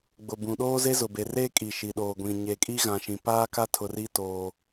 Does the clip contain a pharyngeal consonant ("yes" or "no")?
no